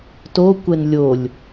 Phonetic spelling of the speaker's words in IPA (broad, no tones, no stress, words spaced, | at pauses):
tokʷɛn lʲolʲ